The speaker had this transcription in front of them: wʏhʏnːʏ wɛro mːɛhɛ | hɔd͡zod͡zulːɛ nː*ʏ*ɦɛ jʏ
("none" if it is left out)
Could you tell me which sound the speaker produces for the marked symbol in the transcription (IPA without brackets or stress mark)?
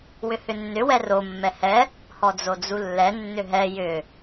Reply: ʏ